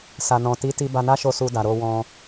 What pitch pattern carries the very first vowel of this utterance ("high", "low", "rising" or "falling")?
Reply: low